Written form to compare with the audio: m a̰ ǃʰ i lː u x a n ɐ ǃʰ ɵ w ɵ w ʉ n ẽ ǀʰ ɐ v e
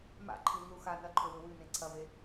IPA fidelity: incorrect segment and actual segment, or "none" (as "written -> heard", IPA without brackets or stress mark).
none